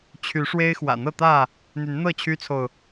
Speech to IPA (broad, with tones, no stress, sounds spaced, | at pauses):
t͡ɕʰ y˨˦ ʂ w e˦ ɪ̯ x w ä̰˨˩ n̪ ɤ˥˨ t̪ ä˥˨ | n̪ y˨˦ n n̪ ɤ˥˨ t͡ɕʰ y˦ t͡sʰ o˨ ʊ̯